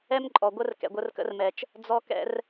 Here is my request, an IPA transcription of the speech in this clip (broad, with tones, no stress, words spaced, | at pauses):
ɛ˦mǃʼɔ˨ɡʷə˦r kɛ̰˨ɡʷə˧rkə̰˧rmɛ˨t͡ʃ | d͡zɔ˧kɛ̰˧r